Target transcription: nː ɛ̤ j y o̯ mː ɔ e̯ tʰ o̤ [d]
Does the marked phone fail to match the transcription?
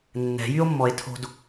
no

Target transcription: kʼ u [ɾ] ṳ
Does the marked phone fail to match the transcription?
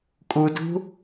yes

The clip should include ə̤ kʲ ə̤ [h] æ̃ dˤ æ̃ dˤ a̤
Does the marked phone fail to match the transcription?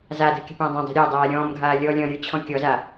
yes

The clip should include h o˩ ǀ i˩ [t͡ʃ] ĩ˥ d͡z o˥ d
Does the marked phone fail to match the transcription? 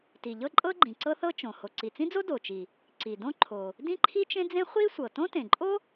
yes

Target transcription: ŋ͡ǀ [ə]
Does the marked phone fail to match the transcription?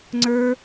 yes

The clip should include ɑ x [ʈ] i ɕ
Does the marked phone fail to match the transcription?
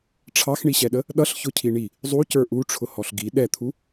yes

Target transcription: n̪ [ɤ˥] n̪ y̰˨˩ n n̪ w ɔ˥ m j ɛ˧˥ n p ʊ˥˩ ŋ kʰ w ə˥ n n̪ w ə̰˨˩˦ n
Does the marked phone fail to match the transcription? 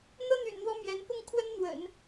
no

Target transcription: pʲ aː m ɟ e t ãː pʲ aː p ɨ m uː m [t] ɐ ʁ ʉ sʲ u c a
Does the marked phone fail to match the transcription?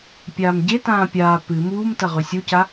no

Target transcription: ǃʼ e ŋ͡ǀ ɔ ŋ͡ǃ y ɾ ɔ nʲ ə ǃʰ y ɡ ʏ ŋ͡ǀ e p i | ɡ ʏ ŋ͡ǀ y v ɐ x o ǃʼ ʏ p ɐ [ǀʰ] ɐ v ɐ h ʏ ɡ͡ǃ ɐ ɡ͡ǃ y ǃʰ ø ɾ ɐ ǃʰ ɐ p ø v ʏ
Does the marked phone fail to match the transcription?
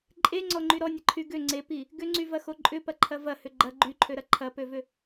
yes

